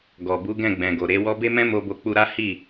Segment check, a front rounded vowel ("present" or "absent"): absent